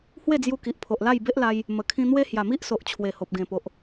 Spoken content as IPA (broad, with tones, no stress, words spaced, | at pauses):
hwe˥˧d͡zju˧ki˨ʔpʰo˨ʔ la˥˧jbe˦ʔla˧j | mə˨˩kʰĩ˧n̪we˦ hja˨˩mi˦ʔso˨ʔ t͡ɕʰwe˨˩ho˨p̚ɡẽ˨˩po˨ʔ